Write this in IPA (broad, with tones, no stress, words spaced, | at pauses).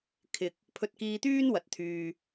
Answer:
kʰɪ˨k̚ | pʰɵ˧t̚kiː˧t̪yː˥n wɐ˨t̚t̪ʰyː˨